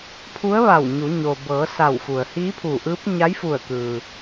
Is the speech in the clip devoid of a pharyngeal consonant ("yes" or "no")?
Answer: yes